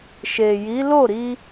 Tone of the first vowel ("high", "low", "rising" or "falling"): low